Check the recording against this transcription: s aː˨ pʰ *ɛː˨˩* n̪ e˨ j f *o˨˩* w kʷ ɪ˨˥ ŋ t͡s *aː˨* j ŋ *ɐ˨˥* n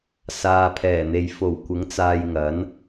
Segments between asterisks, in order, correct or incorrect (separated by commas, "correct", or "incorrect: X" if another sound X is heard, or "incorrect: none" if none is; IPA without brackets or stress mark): correct, correct, correct, correct